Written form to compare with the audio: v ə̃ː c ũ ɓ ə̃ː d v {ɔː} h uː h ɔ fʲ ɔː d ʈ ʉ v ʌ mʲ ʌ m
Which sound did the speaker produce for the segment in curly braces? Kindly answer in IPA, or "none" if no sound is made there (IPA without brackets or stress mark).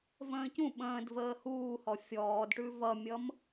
əː